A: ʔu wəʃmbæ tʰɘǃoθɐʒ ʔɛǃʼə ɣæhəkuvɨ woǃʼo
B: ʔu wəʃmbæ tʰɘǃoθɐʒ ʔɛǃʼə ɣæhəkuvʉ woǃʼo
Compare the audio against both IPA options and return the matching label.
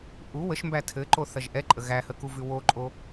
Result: B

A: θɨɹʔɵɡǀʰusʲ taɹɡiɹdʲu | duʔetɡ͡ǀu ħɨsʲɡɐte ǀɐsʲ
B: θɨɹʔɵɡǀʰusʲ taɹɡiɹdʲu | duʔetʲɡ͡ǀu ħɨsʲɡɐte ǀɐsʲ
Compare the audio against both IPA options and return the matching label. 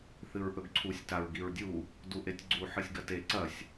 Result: B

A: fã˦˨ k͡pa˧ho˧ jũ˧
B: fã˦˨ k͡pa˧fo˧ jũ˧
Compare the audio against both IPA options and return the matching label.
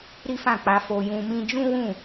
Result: B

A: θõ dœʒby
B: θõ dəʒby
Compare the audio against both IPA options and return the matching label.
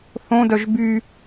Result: A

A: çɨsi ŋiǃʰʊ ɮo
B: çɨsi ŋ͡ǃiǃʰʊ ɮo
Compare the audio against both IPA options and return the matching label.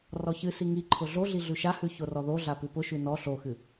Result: A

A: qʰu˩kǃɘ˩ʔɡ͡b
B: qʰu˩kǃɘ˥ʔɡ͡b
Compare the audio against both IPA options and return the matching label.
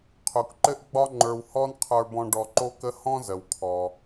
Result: B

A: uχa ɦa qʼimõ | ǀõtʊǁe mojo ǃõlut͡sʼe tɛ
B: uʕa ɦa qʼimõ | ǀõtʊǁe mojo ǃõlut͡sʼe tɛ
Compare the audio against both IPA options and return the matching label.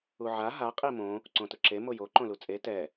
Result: B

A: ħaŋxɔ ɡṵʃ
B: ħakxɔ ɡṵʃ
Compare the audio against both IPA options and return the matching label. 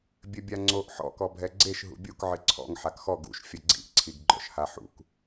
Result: B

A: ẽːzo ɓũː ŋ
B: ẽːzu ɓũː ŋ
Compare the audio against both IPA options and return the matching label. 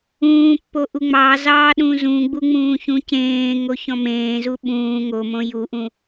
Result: B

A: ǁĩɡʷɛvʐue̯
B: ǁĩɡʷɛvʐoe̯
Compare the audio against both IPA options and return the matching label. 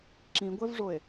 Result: B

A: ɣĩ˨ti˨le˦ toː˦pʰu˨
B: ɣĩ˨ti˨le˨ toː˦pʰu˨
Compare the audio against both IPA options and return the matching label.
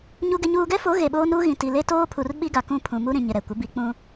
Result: A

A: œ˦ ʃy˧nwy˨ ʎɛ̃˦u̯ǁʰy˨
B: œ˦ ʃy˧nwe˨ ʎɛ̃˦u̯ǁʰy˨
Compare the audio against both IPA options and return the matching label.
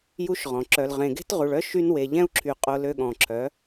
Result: B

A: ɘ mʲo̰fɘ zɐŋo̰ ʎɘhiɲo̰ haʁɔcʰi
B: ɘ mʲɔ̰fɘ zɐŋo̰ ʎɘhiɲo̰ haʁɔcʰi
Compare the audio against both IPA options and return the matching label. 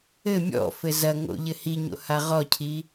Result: B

